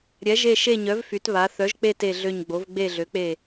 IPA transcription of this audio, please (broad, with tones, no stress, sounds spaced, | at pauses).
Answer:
ɾʲ ɛ˩˥ ʒ e˦˨ ʃ e˦˨ ɲ œ˩˥ v f y˩˥ t β a˩˥ θ œ˩˥ ʒ k͡p e˦˨ t e˦˨ ɮ ø˦˨ ɲ ɡ͡b o˩˥ v ɡ͡b e˦˨ ɮ ø˩˥ k͡p e˦˨